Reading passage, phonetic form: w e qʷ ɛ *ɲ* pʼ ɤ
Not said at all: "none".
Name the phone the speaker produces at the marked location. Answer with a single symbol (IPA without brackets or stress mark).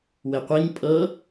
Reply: ɲ